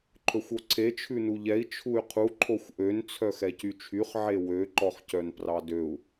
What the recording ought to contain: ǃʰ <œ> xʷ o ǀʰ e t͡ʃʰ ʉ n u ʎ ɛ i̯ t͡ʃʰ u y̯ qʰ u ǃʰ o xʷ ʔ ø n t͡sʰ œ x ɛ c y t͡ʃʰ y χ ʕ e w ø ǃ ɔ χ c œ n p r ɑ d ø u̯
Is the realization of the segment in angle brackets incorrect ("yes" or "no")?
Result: yes